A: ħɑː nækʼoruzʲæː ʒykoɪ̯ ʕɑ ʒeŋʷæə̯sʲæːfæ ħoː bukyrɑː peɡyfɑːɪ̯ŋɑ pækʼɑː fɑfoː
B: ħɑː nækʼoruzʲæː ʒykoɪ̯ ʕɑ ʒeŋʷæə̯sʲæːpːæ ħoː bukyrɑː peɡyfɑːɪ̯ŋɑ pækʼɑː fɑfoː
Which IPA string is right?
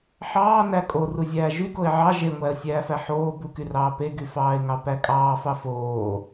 A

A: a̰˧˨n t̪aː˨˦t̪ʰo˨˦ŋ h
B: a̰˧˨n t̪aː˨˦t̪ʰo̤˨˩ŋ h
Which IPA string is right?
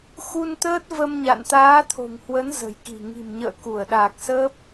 B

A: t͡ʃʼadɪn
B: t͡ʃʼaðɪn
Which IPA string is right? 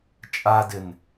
A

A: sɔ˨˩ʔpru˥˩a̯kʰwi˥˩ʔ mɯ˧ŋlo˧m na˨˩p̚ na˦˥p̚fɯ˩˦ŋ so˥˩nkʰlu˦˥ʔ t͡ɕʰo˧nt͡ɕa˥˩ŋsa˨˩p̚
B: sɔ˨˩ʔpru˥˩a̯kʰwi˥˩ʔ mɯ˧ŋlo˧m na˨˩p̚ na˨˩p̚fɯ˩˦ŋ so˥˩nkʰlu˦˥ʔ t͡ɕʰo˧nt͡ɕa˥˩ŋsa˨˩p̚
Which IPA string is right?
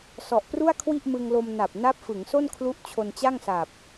A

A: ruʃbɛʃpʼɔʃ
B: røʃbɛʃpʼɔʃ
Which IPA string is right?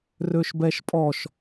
B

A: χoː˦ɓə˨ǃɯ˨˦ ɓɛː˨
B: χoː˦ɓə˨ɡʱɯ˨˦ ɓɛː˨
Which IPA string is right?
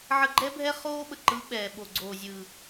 A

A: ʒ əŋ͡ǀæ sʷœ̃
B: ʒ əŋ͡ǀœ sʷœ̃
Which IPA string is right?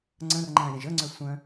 B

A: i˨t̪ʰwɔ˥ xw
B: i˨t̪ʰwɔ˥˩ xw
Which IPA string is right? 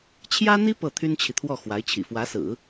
B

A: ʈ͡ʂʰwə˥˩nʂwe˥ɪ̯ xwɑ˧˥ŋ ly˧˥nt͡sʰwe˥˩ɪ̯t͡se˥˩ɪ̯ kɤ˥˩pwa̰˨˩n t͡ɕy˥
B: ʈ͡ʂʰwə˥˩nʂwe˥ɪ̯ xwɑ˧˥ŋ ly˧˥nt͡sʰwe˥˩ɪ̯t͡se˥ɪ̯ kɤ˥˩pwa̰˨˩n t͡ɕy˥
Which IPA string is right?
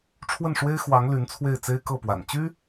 B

